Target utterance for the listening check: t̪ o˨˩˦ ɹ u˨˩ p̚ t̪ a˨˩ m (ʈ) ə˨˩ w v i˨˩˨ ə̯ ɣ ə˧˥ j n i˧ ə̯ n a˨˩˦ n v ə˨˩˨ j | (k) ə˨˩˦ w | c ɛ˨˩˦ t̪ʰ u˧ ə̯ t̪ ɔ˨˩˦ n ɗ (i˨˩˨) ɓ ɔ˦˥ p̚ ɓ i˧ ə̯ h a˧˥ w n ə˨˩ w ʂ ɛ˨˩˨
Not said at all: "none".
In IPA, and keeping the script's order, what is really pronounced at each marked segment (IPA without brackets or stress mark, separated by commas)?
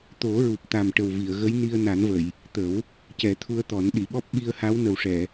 ʈ, t̪, i˨˩˨